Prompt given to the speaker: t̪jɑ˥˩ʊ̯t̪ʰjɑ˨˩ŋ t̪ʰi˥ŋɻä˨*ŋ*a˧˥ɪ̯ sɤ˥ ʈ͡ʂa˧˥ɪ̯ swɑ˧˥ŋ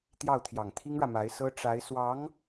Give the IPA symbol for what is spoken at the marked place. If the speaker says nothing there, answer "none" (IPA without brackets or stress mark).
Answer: m